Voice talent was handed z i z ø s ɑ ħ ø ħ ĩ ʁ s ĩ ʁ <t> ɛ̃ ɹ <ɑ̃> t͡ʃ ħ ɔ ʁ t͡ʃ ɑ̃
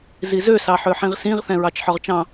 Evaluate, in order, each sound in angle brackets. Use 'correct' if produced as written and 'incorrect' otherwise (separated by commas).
incorrect, incorrect